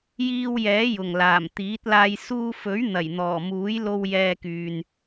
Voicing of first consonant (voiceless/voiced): voiced